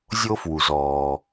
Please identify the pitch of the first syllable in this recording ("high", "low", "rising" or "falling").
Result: high